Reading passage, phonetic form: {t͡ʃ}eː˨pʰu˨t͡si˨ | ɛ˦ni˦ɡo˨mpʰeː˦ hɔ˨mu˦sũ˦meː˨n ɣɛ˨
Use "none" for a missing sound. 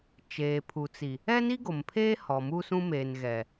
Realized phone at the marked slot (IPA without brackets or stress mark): t͡ʃ